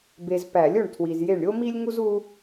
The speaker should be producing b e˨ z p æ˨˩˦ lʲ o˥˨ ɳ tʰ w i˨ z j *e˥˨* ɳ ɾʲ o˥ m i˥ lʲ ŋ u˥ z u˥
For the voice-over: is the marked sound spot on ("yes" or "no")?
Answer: yes